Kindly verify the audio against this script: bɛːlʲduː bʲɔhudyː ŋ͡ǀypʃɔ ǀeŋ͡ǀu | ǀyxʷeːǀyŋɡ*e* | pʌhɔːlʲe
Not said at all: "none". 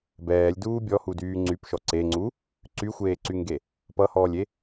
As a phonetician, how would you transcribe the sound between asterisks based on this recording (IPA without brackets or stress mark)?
e